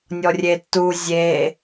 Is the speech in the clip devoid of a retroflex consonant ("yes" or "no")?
yes